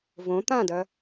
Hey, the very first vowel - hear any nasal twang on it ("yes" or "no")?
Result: yes